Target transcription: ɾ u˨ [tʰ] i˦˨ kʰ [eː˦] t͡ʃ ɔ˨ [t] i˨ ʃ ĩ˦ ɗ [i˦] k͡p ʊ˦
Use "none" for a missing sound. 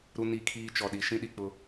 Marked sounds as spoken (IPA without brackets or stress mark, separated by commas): n, iː˦, ɗ, i˨